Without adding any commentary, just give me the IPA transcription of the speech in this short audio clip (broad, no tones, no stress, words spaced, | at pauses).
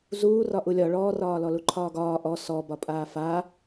zuːrɒ ʔulʲɒ ɭɔːrɒː lɔluǃʰɒːɡɒː ʔɔ sɔ bɒpʼaːfa